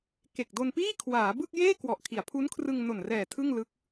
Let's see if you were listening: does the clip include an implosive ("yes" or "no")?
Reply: no